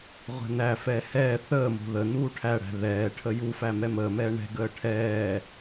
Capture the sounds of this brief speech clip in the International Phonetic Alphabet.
ʁʷ ɛ̤ n æ f ɛː h ɛː θ əː m o̤ ð ə n uː ʈʰ æ ɽ æ̤ ð ɛː ʈʰ ə j u f æ m ɛ m əː m ɛː ɳ ɛ̤ ɡ əː ʈʰ ɛː

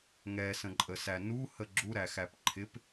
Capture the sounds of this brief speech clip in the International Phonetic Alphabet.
ŋ ɛ s ə̃ ǃʼ ə s æ n u h ə ɡ͡ǁ u ɾ æ x æ p ǃʰ ɪ p

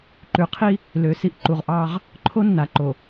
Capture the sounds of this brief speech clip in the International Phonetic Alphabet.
ǃ ʉ˨ qʰ i˦ | l ø˨ s i˦ ʔ ǃ u˨ ʁ ʔ ɑ˦ ʁ | ǃʰ o˦ nː a˨ ǃ o˨

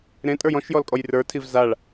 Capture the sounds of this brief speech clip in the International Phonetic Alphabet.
ɾ ẽ tʼ ə˞ j ɔ̃ ʃ j ɔ l kʼ ɔ j r ə˞ tʰ i v z a ɭ

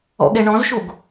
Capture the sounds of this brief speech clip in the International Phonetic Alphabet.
ɔ̰ ɠ ɛ ɳ ɔ̃ z ʃ o ɡ

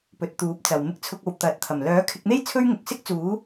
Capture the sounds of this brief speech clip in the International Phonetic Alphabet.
p ɵ˨ t̚ t̪ uː˨˥ p̚ t͡s ɐ˨ w m ɪ˧ k̚ t͡sʰ ʊ˧ k̚ o˨ w t̪ ɐ˨ t̚ t̪ʰ ɐ˨˩ m l œː˨˥ kʰ ɪ˧ k̚ n̪ e˥ j t͡sʰ ɵ˥ ɥ ŋ ʊ˨ k̚ s ɪ˥ k̚ t͡s uː˨˥

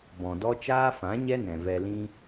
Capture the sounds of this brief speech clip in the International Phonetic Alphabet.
b ɔ̃˨ d ɔ˦ t͡ʃ aː˦ f ã˨˦ ɲ ɛ˦ n ɛ̃˨ v ɛ˧ l ĩ˦

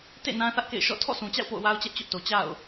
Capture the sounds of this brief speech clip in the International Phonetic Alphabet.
t ḛ˦˨ n ã˦ θ ä˦ ʔ k ḛ˦˨ ɪ̯ ʃ ɔ̰˦˨ tʰ ɔ̰˦˨ sʰ ũ˨ t͡ɕ a̰˦˨ ʊ̯ p o̰˦˨ ʊ̯ w a˦ ʊ̯ t͡ɕ ɛ˦ ʔ t͡ɕ ʊ˦ ʔ t o˨ t͡ɕ a̰˦˨ ʊ̯

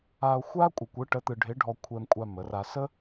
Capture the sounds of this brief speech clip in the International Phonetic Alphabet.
a˧ o̯ xʷ a˥ kʷʼ ə˧ kʷ ɯ˧˥ ʈ ə˧˥ t̪ ɯ˧ ɖʱ ɪ˧˥ ɖʱ ɔ˧ kʷʰ ɛ˧ m kʷʼ a˧ m ə˩˧ r a˧ s ə˥

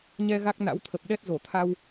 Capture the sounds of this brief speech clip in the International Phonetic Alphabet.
ɲ ɛ˧ ɣ a˦˥ k̚ n a̰˧˥ w t̪ʰ ə˨˩ p̚ ɗ ɛ˦˥ t̚ z o˧˩ t̪ʰ a˧ w

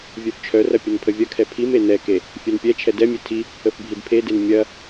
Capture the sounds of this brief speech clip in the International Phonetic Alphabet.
vʲ œ f t͡ʃʰ œ r ɐ pʲ ə n pʰ ə vʲ ɐ kʰ ɛ pʰ i m e n ɛ k e | fʲ œ n pʲ ɛ t͡ʃʰ ɛ d ɛ mʲ e tʰ i | ə f bʱ i d pʰ e d e n mʲ ɐ

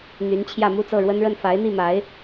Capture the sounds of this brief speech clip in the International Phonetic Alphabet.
n̪ y˧˥ n t͡ɕʰ j ä˥˧ m u˥˧ t͡s ɤ˥˩ ɻ w ə˥ n ɻ ə˥˩ n f a˧˥ ɪ̯ n̪ i˥˩ m a˧˥ ɪ̯

